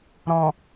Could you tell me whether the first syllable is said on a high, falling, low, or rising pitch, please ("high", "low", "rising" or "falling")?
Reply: low